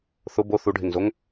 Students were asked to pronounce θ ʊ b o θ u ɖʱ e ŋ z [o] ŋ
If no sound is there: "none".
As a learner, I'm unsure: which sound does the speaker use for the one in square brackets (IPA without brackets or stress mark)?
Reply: o